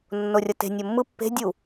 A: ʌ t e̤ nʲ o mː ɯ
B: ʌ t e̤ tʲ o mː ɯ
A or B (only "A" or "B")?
A